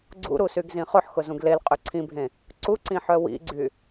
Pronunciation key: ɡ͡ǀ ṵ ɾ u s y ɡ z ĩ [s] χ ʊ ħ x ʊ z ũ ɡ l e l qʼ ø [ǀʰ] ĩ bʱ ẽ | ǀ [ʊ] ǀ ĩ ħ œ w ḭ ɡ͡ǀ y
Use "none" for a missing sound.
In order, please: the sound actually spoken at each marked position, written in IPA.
none, ǀʰ, u

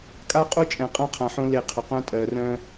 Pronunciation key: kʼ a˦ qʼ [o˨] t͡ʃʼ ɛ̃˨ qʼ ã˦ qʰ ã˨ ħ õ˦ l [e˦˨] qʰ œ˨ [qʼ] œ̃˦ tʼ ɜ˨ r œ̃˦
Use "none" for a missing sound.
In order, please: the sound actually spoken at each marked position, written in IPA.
o˦, e˦˨, q

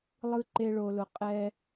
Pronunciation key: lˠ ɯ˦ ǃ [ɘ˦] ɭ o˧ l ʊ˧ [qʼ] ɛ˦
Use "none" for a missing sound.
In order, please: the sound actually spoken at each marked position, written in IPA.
e˦, qʼ

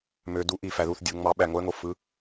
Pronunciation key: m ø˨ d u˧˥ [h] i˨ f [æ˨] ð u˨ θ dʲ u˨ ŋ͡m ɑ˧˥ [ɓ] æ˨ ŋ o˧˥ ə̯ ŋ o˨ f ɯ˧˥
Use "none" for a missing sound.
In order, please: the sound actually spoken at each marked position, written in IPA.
ʔ, æ˨, ɓ

